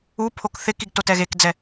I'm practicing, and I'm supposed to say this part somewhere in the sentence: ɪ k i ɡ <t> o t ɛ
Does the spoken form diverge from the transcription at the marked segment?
no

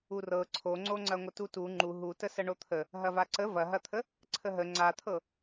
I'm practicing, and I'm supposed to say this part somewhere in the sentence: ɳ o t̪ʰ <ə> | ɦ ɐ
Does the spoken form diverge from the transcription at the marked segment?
no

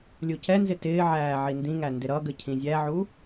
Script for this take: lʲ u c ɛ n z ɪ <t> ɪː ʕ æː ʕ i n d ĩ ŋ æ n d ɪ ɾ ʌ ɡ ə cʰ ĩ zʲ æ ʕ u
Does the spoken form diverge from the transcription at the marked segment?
no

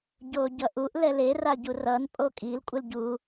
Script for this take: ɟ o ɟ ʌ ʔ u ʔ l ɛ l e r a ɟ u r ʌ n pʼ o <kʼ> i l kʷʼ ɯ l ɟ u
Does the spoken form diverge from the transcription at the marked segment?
no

